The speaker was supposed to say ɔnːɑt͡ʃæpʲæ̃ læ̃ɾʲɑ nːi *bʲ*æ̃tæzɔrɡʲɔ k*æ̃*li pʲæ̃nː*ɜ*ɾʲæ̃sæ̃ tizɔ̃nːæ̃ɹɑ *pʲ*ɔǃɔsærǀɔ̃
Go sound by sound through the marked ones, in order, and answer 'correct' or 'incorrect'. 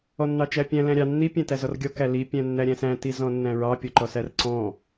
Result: incorrect: pʲ, incorrect: æ, incorrect: æ, correct

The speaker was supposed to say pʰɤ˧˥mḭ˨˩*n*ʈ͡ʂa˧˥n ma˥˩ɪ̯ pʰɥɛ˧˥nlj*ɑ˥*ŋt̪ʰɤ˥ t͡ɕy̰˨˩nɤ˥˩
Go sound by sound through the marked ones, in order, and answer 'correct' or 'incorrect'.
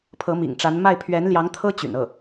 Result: incorrect: ŋ, incorrect: ɑ˧˥

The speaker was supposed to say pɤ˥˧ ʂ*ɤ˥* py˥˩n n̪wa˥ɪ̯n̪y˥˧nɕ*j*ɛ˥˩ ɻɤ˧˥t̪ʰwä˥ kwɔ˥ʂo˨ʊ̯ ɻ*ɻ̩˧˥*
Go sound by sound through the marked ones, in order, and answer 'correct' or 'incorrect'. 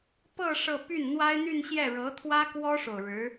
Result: incorrect: ɤ˥˧, correct, correct

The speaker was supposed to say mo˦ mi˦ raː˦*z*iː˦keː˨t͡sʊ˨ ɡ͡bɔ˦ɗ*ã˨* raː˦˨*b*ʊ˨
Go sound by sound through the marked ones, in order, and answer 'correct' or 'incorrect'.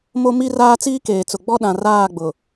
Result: incorrect: t͡s, correct, incorrect: ɡ͡b

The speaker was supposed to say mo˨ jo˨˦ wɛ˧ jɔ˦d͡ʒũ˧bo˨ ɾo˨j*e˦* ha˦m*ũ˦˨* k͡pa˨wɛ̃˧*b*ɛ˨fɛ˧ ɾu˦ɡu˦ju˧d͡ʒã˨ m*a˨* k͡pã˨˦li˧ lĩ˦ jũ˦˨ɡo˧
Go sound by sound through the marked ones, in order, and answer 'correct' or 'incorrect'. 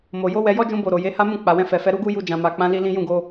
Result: incorrect: e˨˦, correct, incorrect: f, correct

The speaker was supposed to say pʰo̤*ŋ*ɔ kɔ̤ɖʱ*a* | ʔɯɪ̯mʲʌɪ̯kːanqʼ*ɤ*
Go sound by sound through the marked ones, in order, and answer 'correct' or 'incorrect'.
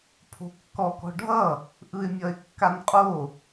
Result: incorrect: kː, incorrect: ʌ, incorrect: o

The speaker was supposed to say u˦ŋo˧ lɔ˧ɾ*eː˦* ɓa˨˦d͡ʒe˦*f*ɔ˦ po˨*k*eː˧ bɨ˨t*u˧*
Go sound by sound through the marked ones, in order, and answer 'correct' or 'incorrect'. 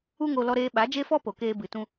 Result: incorrect: eː˧, correct, correct, incorrect: ũ˧

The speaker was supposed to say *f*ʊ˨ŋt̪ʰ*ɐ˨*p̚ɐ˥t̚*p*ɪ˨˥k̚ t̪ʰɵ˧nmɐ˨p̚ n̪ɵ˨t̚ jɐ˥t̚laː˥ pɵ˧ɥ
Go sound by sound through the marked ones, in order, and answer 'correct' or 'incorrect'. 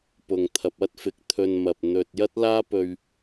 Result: incorrect: p, correct, incorrect: f

